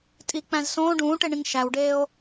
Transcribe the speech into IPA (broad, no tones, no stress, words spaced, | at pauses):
tʼik͡pæ̃z sõː ɖũːʈeɳĩŋ ʃæwɖeːo̯